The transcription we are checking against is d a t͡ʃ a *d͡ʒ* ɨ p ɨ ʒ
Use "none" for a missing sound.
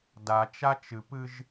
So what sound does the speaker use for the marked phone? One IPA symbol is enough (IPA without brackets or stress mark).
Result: t͡ʃ